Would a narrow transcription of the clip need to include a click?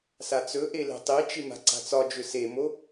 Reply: yes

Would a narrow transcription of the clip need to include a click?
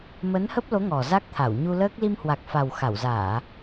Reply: no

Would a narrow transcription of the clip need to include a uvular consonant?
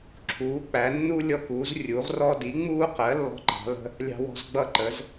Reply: yes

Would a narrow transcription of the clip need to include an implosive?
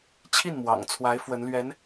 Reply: no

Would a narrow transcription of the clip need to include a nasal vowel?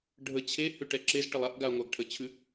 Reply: no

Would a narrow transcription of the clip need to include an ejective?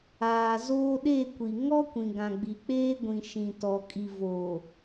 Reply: yes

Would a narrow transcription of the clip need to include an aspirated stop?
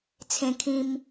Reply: yes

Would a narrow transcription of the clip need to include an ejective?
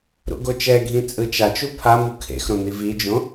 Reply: yes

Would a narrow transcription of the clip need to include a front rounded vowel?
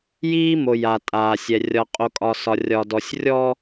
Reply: no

